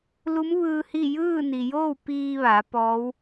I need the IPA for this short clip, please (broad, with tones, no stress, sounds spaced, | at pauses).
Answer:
l u˧˥ m ʋ ɯː˧ h i˥˨ j ɯː˥˨ n i˩ j oː˥˨ w p iː˧ ʋ a˩˧ p ɔː˧˥ w